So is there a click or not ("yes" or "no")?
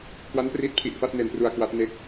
no